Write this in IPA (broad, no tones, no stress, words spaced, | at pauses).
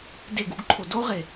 deɡ uɡǃʰo doʁe